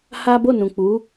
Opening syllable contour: high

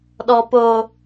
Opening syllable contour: low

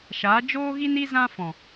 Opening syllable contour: rising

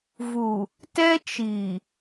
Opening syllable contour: low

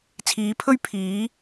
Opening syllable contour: rising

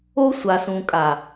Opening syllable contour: high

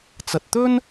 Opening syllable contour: low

